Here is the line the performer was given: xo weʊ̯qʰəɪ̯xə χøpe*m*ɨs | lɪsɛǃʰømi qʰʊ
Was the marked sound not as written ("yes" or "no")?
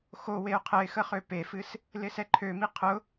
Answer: yes